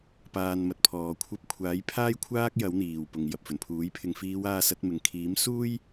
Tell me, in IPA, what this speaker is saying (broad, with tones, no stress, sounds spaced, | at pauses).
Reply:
p aː˨ n m ɐ˨ t̚ pʰ ɔː˨˩ kʷʰ ɐ˧ p̚ kʷʰ aː˨˥ j pʰ aː˥ j kʷʰ aː˥ k̚ j ɐ˨˥ w n̪ iː˨˩ w p ʊ˨˩ ŋ j ɐ˨ p̚ f ɵ˨˩ n pʰ uː˨˥ j pʰ ɪ˨ ŋ f iː˨˧ w aː˧ s ɐ˨˥ t̚ m ɪ˨ ŋ kʰ iː˨˥ m s uː˥ j